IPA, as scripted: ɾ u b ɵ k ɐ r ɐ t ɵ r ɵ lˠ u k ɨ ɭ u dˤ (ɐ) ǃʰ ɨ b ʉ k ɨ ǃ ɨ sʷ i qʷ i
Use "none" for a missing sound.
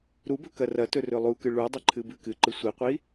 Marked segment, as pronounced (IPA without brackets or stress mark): ɐ